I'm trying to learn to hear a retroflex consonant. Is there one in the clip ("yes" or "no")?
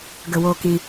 no